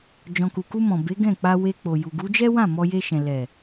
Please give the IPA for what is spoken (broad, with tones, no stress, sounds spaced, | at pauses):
d͡ʒ ɔ̃˨ k u˨ k u˧ m ɔ̃˨ b e˨˦ ɡ ɛ̃˦˨ k͡p a˧ w e˧ k͡p o˨ j u˨ ɡ u˨˦ d͡ʒ ɛ˦ w ã˦˨ m ɔ˧ j e˧ ʃ ɛ̃˨ l ɛ˨